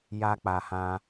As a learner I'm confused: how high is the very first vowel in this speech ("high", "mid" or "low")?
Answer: low